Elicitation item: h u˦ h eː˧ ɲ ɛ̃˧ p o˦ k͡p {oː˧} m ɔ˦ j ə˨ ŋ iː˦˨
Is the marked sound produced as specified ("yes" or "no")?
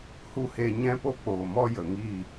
no